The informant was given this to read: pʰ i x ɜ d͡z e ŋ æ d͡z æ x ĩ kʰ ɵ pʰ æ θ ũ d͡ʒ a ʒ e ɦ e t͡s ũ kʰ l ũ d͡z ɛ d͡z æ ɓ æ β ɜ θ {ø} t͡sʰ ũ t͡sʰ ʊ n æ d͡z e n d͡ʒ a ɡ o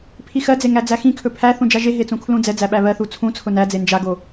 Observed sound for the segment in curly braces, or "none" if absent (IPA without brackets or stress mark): u